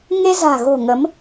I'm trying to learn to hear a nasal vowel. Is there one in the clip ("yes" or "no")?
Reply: no